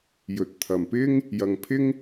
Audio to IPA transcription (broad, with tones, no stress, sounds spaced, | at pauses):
j ɵ˨˥ t̚ t̪ʰ ɐ˨ m p ɪ˥ ŋ | j ɐ˨ ŋ pʰ ɪ˥ ŋ